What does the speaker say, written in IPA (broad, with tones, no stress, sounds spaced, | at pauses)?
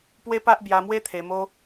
p w e˦ p a˦ ʔ b j a˧ m w e˦ t̪ʰ e˧ m o˦